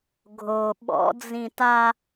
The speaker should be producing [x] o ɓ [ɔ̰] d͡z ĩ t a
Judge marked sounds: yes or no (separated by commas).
no, yes